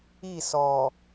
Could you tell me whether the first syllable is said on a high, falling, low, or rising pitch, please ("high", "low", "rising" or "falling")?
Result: falling